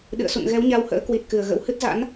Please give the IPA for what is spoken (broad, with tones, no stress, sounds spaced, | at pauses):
ɗ ɨ̰˧˨ ə̯ s ṵ˧˨ n ɣ ɛ˨˦ w ɲ a˧ w h ə̰ː˧˥ k w i˨˩ t̚ k ɨ˨˩ ə̯ ɣ ə̰˧˥ w h ɨ˦˥ t̚ z a̰˧˥ n